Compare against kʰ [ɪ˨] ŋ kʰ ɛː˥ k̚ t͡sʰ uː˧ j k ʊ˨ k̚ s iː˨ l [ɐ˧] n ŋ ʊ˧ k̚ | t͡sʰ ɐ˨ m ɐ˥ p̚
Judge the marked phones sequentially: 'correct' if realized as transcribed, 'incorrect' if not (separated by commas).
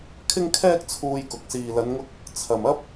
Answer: incorrect, incorrect